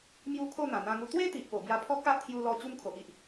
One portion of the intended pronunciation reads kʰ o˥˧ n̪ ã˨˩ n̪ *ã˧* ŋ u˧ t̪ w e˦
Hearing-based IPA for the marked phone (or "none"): ã˧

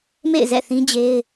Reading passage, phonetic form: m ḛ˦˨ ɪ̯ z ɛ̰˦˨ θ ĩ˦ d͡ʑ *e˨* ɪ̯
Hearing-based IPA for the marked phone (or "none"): e˦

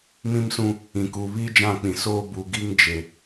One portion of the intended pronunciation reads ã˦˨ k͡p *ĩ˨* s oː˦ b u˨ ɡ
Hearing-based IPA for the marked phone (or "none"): ĩ˨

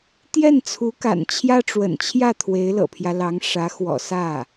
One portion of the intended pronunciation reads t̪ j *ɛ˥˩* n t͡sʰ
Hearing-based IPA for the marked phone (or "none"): ɛ˥˩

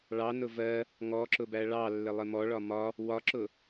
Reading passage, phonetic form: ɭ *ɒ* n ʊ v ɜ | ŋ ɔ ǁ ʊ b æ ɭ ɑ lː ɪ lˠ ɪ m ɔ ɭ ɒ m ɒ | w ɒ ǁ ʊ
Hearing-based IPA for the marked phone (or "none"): ɑ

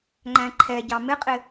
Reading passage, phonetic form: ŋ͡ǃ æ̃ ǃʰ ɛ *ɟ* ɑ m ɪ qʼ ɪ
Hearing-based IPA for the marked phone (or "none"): ɟ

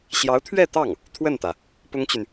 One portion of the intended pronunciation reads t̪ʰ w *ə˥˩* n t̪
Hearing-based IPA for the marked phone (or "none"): ə˥˩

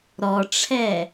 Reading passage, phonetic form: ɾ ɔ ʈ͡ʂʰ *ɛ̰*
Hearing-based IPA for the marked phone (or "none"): ɛ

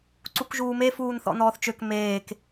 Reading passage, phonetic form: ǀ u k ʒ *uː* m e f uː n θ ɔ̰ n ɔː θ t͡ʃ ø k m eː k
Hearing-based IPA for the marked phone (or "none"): uː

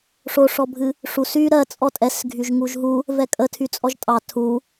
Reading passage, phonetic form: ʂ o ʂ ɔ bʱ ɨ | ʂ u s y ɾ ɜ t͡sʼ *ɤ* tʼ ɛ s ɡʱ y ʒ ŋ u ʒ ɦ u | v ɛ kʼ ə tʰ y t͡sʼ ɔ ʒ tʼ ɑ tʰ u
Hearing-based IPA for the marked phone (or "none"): ɔ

